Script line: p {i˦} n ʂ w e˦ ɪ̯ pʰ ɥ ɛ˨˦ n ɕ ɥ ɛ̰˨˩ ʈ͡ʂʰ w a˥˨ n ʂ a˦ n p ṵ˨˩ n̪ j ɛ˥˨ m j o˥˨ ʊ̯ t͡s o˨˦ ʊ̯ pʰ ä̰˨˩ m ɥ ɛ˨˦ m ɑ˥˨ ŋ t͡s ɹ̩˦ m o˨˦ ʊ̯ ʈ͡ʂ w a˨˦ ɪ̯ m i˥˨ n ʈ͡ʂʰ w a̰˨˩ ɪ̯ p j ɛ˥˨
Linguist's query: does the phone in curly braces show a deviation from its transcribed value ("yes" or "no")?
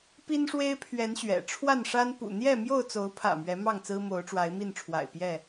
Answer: no